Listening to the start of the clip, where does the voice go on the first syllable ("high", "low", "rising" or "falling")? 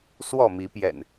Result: falling